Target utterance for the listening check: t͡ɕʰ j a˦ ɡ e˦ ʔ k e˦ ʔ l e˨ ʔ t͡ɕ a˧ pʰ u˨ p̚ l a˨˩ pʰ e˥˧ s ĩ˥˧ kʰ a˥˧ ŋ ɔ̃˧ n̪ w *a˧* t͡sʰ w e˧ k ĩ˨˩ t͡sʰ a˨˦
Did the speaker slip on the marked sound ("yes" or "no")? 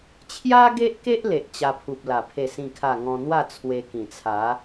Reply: yes